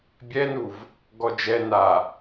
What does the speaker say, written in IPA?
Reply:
bʲ ɛ n u v | ɡ ɔ d͡ʒ ɛ n a

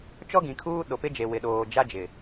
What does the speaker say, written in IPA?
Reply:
t͡ʃ ɔ˦ ɡ ĩ˨ kʰ uː˦ ɗ o˨ p ɪ˦ d͡ʒ e˨ w ɪ˨ ɗ oː˨ d͡ʒ a˦ d͡ʒ ɪ˨

